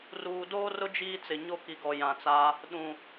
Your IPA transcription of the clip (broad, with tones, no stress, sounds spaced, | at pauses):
r uː˨ d oː˦ r ʊ˦ d͡ʒ iː˦ t͡s ɪ˨ ɲ o˦ k i˨ ɡ ɔ˨ j ã˨ t͡s a˦ | ɗ ũ˨